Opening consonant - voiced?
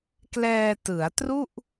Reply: no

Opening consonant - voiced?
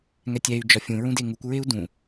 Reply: yes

